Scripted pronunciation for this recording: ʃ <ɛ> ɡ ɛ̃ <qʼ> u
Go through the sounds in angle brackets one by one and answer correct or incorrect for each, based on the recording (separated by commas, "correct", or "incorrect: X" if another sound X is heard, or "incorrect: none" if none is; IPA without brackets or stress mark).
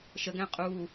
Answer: incorrect: ə, correct